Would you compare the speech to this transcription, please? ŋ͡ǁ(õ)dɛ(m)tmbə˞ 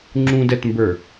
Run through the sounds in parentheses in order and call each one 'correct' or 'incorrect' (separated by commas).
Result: incorrect, incorrect